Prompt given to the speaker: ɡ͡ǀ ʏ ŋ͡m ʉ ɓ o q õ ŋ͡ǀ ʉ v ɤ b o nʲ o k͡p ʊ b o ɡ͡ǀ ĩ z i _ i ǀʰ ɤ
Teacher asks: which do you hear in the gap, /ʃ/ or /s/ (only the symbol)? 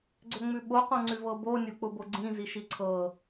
ʃ